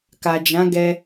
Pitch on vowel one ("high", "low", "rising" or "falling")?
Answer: low